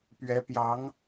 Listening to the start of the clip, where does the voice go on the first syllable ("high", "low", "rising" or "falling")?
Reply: rising